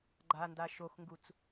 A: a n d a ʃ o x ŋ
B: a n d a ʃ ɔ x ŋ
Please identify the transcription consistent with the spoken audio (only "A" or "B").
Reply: A